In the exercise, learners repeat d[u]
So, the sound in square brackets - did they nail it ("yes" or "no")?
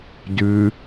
no